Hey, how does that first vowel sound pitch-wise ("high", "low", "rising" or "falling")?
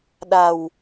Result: low